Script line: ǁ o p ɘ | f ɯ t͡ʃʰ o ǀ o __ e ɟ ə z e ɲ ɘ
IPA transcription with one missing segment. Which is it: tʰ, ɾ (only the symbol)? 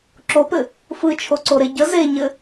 ɾ